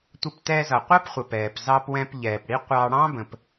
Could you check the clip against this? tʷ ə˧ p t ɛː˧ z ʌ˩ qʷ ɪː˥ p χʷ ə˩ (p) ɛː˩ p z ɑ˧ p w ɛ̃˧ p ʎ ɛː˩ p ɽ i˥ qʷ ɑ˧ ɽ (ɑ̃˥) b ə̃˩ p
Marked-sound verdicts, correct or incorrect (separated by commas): correct, correct